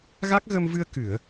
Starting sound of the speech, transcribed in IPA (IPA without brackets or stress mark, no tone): ɣ